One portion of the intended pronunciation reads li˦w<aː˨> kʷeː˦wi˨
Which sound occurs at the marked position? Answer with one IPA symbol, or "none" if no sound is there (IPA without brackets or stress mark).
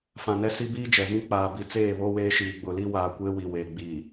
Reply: aː˨